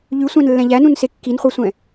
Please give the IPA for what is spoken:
ʎ ʉ sʷ æ̃ n lː ɛ̃ ʎ æ n ũ n s e kː i n χʷ ɑ sʷ ɛ̃

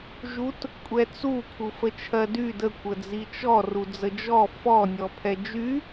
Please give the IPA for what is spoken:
ʒ u t | kʷʼ ɛ t͡s u kʰ u f ə t͡ʃʰ ɜ d y d ə kʷ ə d͡z i t͡ʃ ɔ r u d͡z ə d͡ʒ ɔ f ɔ nʲ ɔ pʰ ɛ d͡ʒ y

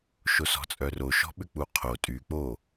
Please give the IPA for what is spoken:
ʃ o s ɔ̤ t͡sʼ œ r o ʃ ɔ̤ ɓ ʏ k͡p u qʰ o tʼ y k͡p o

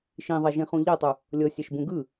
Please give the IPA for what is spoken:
ʃ ĩ ðˤ ɛ ʒ ĩ χ ũ ʎ ɛ tˤ u | lʲ ɤ sʲ ɛ ʃ b ũ ɡ ɯ

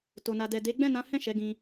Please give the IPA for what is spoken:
t o˨ n a˨ d ɛ˨ d e˨˦ ɡ͡b ɛ̃˦˨ n ã˨˦ h ɛ̃˦˨ ʃ ɛ˨˦ ɡ ĩ˧

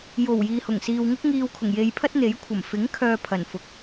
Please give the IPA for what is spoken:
j o˨˩ w j iː˨ h ʊ˨˩ ŋ s iː˨ w ŋ ʊ˥ k̚ ŋ iː˧ w kʰ ʊ˨˩ ŋ j e˧ j pʰ ɐ˥ t̚ n̪ e˨˥ j kʷʰ ɐ˨˩ m f ɪ˨˥ ŋ kʰ œː˧ pʰ ɐ˨˩ n f ʊ˨ k̚

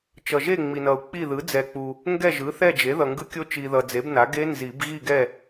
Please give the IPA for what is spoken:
t͡ʃ ʌ˨ ʒ e˥˨ ŋ͡m i˨ n ʌ˨ u̯ k͡p i˥˨ ð ɯ˩˥ d͡z ɛ˨ k͡p u˨ | ŋ ɡ ɛ˥˨ ʒ ɯ˩˥ θ ɛ˥˨ d͡ʒ e˩˥ ð ʌ˨ ŋ ɡ ɯ˦˥ kʲ o˦˥ t͡ʃ i˨ ð ʌ˨ d͡z e˩˥ b n a˩˥ ɡ e˦˥ n z i˨˩˦ b ɣ i˥˨ ɡ ɛ˥˨

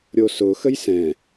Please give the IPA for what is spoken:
ɾʲ o s ʊ x ə j s ɛ̃

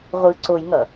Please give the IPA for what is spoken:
ʁʷ ɯ ǀ o j ŋ ʌ

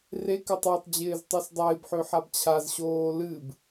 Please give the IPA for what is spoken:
r e k ɪ tˤ a tˤ d͡ʑ ɪː z tˤ ø s dˤ ɪː b ħ ø ħ a b t͡ɕʰ a z ɕ oː l ɨ b

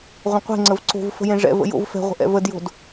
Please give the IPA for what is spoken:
ʁʷ ə̃ qʷ e̤ ŋ͡ǀ ə v ǀ o̤ v f ə̤ j ẽ ʐ ɛ̰ v ə̰ j o̰ v f ɛ̤ ʁʷ ə̤ ʔ ɛ̰ v ə d j o̤ d

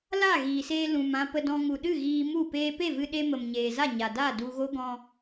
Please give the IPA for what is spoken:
l a˦˨ ɣ iː˨ s eː˧ l ũ˨ m ã˧ p ə˧ d ɔ̃˧ ŋ u˨ ɗ ɨ˦˨ ɣ iː˧ m u˦˨ p eː˧ p e˦˨ v ɨ˧ ɗ e˧ m ə˨ m ɲ eː˨ z a˦˨ ɲ a˨ d aː˦˨ d u˧ ɣ o˦ ɡ ɔ̃˧

